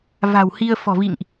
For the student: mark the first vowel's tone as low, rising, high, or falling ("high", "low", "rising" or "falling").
low